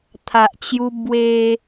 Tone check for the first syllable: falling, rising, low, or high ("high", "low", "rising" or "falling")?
low